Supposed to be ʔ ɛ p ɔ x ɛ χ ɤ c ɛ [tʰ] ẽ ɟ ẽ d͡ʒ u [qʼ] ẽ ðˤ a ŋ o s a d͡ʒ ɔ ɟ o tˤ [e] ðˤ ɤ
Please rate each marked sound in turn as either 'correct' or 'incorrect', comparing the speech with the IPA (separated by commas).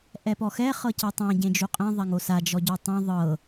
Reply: incorrect, correct, incorrect